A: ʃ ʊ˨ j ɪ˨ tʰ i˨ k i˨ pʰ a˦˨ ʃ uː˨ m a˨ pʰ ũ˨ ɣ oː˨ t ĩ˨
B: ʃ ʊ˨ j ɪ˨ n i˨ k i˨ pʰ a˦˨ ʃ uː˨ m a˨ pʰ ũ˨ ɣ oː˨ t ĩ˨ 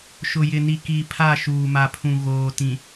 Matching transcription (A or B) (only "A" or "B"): B